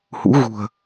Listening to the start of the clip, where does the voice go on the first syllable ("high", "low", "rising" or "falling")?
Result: rising